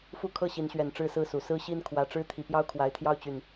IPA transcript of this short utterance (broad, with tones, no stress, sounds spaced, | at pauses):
f u˦ kʰ ɤ˥˨ ɕ i˨˦ n ɕ ɥ ɛ˨˩ n ʈ͡ʂ ɻ̩˥˨ s ɹ̩˥˨ s u˨˩ s ɹ̩˦ ɕ i˦ n kʰ w ä˨˩ ʈ͡ʂ ɻ̩˥˨ t̪ʰ i˨˩ p j ɑ˦ ʊ̯ kʰ w a˨˦ ɪ̯ t̪ʰ j ɑ˦ ʊ̯ t͡ɕ y˨˩ n